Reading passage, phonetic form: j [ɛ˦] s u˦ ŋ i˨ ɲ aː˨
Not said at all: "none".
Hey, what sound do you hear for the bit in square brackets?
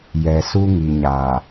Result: ɛ˨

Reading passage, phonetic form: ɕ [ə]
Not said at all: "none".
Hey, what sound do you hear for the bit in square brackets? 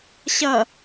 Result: ʌ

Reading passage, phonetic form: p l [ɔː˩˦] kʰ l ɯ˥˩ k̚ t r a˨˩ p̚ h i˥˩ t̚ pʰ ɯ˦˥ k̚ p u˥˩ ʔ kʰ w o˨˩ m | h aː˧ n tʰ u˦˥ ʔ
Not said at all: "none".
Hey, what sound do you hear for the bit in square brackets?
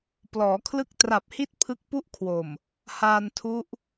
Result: ɔː˩˦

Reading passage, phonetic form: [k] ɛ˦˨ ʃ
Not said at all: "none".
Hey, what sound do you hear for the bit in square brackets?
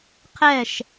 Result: qʰ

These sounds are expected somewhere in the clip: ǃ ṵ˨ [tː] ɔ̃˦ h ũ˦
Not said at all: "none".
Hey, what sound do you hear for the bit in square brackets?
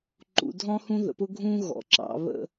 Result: dʱ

